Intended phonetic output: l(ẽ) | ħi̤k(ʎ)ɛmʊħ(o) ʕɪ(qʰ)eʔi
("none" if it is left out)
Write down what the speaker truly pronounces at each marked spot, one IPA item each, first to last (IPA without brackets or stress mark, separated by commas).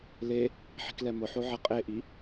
e, l, o, qʼ